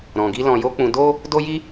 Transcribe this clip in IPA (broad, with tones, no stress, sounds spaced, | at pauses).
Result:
ɾ ɔ̃˨ ɡ i˧ l ɔ̃˨ j o˧ k͡p ũ˧ d o˦ | d o˦ j i˦